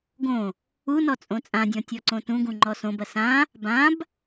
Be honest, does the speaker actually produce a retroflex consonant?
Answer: no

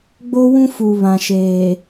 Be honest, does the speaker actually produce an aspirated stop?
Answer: no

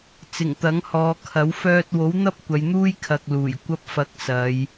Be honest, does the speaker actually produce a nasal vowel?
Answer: no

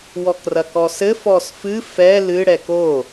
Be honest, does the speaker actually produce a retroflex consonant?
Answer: yes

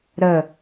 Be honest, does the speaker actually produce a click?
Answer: no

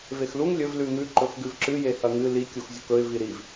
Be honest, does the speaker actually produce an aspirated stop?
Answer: no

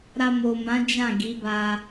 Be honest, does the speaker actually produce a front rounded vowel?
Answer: no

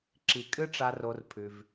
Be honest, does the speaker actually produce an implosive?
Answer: no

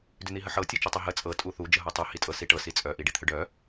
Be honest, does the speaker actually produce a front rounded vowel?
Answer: yes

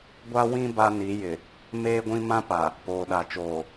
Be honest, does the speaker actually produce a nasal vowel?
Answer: yes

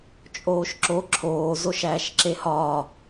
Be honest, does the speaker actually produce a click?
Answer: yes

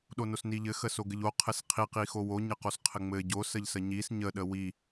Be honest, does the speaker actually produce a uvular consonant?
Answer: yes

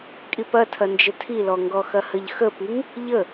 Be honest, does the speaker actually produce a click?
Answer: no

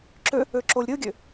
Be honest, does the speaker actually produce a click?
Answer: yes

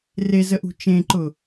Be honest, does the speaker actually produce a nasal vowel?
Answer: yes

